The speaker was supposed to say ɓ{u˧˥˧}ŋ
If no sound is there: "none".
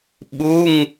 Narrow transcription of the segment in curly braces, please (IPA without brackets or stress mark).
u˧˥˧